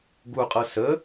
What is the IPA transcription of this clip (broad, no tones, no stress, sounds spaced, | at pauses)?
ɡ u qʼ ɤ s ə